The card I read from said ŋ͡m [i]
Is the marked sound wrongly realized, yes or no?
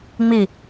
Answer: no